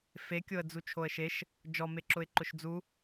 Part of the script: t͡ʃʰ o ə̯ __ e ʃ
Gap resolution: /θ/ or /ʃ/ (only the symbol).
ʃ